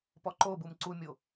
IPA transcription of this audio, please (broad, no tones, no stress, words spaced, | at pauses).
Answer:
pɔǃobum ǀumʲo